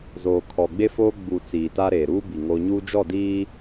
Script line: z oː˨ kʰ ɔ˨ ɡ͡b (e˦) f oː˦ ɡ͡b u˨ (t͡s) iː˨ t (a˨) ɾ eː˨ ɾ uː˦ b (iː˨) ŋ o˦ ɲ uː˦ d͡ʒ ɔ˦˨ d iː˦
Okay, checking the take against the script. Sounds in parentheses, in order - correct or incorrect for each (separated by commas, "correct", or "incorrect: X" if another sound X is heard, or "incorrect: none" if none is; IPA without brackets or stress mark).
correct, correct, incorrect: a˦, incorrect: i˨